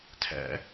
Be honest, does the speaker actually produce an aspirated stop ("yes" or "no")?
yes